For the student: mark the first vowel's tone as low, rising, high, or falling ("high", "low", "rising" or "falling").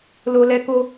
low